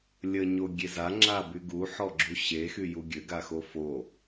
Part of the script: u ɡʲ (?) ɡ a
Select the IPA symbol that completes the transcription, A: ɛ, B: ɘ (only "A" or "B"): B